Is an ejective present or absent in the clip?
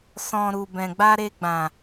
absent